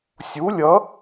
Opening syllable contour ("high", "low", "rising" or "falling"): rising